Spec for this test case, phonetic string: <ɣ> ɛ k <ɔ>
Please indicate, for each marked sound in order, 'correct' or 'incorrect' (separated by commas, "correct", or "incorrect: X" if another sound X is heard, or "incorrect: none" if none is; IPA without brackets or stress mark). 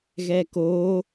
correct, incorrect: o